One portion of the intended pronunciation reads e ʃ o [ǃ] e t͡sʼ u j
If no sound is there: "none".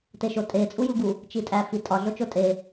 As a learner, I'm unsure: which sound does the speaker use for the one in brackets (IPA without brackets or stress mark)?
tʼ